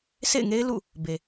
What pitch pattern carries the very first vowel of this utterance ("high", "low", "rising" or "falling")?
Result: falling